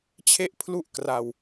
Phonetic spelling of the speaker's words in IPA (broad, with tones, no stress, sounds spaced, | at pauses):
t͡ɕʰ e˥˩ ʔ pʰ l u˥˩ ʔ k r a˧ w